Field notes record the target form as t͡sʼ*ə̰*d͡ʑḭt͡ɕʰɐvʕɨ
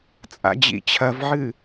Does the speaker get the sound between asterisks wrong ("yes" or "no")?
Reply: yes